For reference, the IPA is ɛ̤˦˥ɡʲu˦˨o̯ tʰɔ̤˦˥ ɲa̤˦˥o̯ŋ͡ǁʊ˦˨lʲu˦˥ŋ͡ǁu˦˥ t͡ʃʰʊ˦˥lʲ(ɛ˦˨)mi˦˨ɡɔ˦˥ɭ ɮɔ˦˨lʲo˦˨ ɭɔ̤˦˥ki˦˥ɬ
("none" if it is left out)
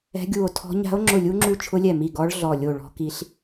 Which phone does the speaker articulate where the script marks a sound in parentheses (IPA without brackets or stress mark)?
ɛ˦˨